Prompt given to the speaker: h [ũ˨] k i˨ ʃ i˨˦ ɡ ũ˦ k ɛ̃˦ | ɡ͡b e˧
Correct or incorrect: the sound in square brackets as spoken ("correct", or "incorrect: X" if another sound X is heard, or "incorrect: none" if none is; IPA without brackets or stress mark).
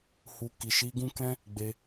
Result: incorrect: u˨